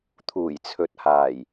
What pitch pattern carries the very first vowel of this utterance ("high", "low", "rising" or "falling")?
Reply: low